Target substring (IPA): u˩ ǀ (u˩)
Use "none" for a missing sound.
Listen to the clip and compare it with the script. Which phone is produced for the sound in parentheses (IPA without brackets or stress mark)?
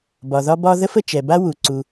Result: u˩